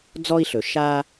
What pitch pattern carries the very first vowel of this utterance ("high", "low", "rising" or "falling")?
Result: high